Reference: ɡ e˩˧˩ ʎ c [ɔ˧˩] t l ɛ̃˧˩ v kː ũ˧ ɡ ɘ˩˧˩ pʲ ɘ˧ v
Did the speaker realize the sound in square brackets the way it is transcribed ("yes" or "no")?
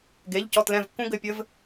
yes